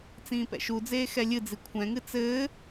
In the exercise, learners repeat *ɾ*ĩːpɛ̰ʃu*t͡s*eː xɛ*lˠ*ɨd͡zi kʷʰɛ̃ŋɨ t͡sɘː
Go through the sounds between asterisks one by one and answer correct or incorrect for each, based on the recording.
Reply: incorrect: t͡s, incorrect: d͡z, incorrect: lʲ

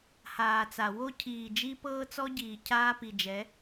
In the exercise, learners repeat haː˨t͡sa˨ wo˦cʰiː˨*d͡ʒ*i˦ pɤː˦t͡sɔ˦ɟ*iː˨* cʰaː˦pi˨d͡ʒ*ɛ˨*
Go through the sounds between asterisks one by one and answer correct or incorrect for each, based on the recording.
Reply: correct, correct, incorrect: ɛ˨˦

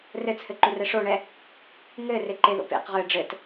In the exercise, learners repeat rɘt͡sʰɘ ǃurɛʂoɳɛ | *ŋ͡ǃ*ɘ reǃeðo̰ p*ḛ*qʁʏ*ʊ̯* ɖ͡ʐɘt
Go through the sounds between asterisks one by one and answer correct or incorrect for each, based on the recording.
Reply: incorrect: ŋ, correct, incorrect: ə̯

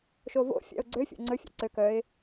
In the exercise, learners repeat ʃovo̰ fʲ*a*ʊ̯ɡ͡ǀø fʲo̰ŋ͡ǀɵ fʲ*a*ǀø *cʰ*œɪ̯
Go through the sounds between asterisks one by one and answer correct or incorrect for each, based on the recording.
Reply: incorrect: a̰, incorrect: a̰, incorrect: k

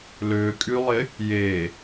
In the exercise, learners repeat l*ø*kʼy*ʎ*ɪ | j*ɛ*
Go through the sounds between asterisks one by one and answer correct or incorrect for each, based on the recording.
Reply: correct, incorrect: lˠ, incorrect: e

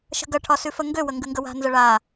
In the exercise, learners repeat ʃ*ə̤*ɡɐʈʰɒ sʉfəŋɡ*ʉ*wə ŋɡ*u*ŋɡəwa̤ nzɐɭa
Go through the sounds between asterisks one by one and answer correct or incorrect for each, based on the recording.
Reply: correct, incorrect: ø, incorrect: ʉ

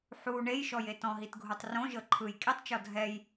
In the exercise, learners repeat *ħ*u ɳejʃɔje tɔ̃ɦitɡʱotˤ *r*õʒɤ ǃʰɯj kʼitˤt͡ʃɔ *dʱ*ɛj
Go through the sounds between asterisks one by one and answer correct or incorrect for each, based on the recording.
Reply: correct, correct, correct

